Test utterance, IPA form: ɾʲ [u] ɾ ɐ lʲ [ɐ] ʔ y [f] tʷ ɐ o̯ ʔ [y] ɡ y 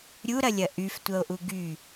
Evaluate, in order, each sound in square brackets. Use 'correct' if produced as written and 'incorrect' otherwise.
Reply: correct, correct, correct, incorrect: u

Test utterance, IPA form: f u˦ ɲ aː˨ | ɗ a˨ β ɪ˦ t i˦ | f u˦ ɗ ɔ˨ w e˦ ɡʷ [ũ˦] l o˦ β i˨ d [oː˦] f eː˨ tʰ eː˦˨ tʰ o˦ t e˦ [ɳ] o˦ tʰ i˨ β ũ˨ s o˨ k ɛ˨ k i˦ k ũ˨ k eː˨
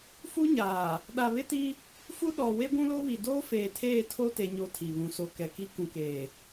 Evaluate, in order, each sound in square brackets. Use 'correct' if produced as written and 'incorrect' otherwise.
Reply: correct, correct, incorrect: ɲ

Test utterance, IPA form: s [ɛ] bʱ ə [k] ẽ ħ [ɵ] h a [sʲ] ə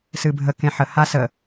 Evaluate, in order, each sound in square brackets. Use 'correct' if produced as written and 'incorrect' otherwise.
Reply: incorrect: ɨ, correct, incorrect: ə, incorrect: s

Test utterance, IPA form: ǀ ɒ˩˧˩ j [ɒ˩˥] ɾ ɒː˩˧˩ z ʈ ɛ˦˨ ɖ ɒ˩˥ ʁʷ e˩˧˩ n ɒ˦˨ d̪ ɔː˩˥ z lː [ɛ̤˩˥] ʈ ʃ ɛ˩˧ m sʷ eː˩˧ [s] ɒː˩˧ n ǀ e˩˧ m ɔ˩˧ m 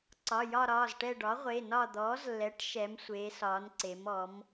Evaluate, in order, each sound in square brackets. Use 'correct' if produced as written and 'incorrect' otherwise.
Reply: incorrect: ɒ˦˨, incorrect: ɛ˩˥, correct

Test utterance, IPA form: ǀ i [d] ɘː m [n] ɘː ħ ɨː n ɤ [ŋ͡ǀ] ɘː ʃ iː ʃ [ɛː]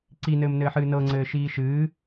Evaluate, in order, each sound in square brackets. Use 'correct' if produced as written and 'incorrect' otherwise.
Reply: incorrect: n, correct, correct, incorrect: ɨː

